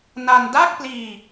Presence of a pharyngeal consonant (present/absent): absent